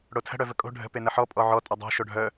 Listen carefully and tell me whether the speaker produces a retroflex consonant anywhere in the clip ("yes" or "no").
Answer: yes